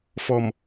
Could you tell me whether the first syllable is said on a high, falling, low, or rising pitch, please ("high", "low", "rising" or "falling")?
low